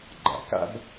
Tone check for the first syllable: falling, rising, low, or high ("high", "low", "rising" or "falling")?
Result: low